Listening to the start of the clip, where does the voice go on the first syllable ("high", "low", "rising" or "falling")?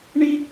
high